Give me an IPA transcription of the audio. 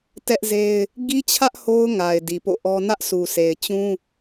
t ɛ˦ ʔ z e˦ ɪ̯ | ɡ i˦ t͡ɕʰ ä˦ ʔ h o˦ ʊ̯ ŋ a˨ ɪ̯ d i˨ p o̰˦˨ ʔ ɔ˦ n ä˦ ʔ sʰ u˨ sʰ e˨ ɪ̯ t͡ɕ ũ˦

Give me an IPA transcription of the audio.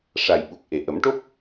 ʂ a˨˩ j ɓ u˨˩ k̚ ʔ e˨˩ ʔ ə˨˩˦ m ʈ o˦˥ p̚

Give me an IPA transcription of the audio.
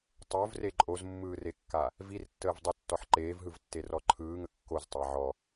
tˤ o v r e ǃʼ o z mː ɯː r e kː a | v i r tː əː v dˤ o tː ɔ ħ ǃ eː v ɦ ɯ v tː e r ɔ ǃʰ ɯː ŋ ə kː o z tˤ a ʕ ɔ

